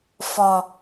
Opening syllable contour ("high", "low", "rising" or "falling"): low